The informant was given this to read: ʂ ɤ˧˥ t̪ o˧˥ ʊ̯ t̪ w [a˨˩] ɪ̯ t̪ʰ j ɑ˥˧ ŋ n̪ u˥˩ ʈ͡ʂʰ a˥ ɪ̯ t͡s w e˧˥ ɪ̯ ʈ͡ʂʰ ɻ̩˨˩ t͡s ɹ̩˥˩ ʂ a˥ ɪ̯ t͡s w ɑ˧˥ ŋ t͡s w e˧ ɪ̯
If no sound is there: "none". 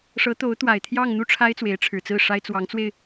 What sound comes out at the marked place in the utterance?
a˨˩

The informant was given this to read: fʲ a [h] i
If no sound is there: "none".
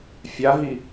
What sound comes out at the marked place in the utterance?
ɦ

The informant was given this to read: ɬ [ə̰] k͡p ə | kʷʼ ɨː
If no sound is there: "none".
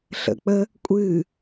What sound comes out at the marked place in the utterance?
ə̰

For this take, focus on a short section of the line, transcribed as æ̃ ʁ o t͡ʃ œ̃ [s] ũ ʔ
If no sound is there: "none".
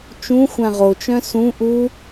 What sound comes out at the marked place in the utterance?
s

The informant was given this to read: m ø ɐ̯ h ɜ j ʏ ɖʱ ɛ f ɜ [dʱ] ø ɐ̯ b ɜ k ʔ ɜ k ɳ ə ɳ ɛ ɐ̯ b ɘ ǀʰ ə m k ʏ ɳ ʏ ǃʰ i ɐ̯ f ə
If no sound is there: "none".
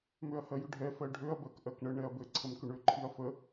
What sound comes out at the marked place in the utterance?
ɖʱ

